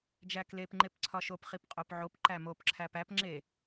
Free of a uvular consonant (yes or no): no